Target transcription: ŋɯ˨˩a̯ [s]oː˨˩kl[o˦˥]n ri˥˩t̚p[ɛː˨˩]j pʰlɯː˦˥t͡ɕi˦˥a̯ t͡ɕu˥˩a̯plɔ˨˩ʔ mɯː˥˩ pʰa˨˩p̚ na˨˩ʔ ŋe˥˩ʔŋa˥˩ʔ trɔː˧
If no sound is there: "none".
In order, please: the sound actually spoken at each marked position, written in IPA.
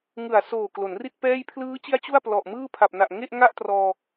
s, o˩˦, ɛː˥˩

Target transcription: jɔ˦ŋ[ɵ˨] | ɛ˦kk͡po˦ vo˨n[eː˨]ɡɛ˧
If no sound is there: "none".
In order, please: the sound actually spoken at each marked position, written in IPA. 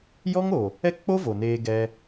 o˨, eː˧

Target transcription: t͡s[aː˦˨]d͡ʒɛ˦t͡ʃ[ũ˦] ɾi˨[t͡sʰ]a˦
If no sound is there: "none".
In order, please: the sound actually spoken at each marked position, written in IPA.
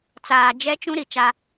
aː˨, ũ˦, t͡ʃ

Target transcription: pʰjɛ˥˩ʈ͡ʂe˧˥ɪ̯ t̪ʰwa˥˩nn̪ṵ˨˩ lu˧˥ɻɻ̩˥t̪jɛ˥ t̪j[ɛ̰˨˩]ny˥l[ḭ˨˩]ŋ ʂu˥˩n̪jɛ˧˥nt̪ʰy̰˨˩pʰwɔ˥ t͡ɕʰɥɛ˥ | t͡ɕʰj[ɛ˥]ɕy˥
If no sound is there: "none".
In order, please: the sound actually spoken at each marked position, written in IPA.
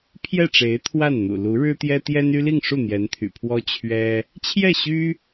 ɛ˥, i˥˧, ɛ˥˩

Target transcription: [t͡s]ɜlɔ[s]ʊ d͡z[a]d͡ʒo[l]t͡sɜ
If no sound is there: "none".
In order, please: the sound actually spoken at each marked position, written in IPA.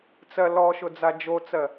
t͡s, ʃ, a, none

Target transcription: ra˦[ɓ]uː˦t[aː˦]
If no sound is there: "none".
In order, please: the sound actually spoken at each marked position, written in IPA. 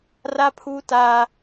pʰ, aː˦

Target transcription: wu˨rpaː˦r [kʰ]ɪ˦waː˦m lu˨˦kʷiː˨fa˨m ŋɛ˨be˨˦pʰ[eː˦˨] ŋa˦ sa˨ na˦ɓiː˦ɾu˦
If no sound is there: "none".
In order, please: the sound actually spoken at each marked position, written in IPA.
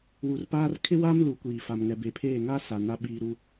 kʰ, eː˦˨

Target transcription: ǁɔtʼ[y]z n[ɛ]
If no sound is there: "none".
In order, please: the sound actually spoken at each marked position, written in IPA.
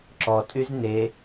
y, e

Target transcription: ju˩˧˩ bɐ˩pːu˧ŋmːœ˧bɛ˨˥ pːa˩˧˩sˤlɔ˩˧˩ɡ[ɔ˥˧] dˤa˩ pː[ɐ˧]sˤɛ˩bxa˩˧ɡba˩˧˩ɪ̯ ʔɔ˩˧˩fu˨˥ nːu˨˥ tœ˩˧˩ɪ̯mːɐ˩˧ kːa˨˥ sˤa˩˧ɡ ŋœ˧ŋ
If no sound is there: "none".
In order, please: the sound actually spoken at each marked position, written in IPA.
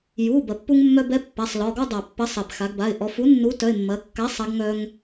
ɔ˥˧, ɐ˨˥

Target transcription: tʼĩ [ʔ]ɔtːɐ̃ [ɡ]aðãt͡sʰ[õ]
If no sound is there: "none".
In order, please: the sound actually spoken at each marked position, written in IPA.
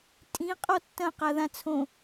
qʼ, q, õ

